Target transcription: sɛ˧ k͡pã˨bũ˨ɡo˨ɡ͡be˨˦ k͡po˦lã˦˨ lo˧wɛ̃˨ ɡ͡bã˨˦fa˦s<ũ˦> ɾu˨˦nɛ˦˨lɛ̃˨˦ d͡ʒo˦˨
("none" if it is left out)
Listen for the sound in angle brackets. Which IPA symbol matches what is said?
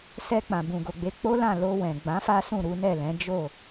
ũ˦˨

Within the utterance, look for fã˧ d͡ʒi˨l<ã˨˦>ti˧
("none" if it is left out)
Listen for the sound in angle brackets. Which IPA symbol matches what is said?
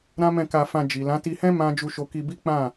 ã˨˦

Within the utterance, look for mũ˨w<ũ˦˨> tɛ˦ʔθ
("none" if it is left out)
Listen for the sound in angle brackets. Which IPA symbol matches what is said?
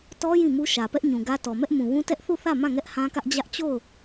ũ˦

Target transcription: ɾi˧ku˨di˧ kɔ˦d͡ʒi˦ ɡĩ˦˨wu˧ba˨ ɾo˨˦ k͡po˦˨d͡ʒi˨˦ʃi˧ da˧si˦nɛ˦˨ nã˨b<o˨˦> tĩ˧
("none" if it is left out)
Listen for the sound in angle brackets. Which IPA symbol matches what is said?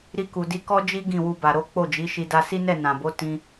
o˨˦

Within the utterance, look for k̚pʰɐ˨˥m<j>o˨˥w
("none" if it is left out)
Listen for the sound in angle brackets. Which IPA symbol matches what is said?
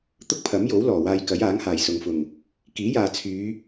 j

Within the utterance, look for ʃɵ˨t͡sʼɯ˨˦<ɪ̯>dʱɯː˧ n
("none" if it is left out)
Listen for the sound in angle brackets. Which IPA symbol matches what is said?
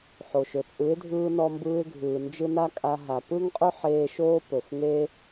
ɪ̯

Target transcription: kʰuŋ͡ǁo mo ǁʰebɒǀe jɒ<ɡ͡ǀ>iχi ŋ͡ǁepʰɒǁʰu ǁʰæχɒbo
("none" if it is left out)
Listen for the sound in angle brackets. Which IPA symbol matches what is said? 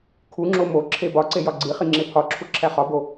ɡ͡ǀ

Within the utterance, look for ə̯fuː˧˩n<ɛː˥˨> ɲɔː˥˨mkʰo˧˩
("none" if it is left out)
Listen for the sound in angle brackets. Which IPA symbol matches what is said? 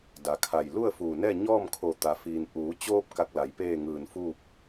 ɛː˥˨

